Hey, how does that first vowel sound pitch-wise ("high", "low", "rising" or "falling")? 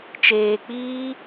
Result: low